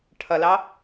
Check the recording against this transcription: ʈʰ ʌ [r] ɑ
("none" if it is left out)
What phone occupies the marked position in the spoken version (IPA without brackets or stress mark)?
l